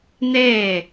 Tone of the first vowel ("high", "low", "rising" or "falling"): falling